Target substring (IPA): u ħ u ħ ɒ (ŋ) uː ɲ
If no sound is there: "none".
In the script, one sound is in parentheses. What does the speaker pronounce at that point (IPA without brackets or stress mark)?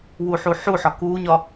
k